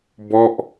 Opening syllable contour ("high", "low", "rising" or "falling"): falling